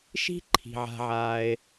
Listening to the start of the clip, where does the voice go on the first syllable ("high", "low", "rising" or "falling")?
high